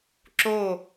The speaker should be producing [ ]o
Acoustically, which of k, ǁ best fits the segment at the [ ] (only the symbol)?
ǁ